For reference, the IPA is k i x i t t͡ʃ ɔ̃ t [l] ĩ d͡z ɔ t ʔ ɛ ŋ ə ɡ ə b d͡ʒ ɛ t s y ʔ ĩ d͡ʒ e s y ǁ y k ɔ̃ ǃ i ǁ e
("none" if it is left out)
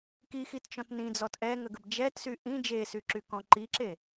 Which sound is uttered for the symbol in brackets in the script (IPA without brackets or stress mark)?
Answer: n